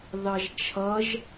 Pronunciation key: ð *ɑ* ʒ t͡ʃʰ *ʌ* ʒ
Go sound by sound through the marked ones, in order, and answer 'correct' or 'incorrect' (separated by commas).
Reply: correct, correct